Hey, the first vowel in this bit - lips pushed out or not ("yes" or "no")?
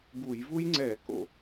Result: yes